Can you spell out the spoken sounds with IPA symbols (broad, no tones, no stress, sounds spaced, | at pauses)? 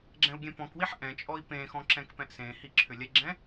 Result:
ɡ͡ǁ ɛ̃ u̯ ɡʲ ɛ̃ p ɔ̃ k w i ħ ʔ ɛ̃ t͡ʃʼ ɔ i̯ p ẽ x ɔ̃ ǁ ɛ̃ k p ɛ̃ ʔ s ẽ h i ǁʰ ʏ lʲ ɛ ɡ͡ǁ ɛ̃